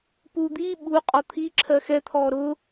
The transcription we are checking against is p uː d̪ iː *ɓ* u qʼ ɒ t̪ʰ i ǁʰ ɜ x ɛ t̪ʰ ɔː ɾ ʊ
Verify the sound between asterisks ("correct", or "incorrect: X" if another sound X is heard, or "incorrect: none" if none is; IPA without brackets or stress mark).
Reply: correct